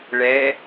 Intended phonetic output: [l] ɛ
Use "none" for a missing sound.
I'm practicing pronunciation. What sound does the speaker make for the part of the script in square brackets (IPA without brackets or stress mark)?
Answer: ɭ